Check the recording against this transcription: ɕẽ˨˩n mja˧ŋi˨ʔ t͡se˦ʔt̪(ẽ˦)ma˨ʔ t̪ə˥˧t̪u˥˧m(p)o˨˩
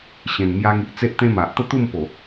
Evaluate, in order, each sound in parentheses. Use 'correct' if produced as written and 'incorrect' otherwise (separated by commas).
correct, correct